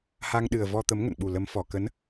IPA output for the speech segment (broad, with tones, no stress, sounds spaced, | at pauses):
h a˧ ŋ ɗ ɨ˨˩ ə̯ v ɔ˧ t̪ ə˨˦ m ŋ ə̰˧˨ n ɓ u˨˩ l ə˨˦ m f ɔ˨˩ k ə˨˦ n